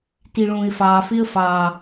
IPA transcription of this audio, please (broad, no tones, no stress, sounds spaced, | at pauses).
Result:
t i ɭ ũː ɪ̯ f ɑː f ɪ ə̯ f ɑ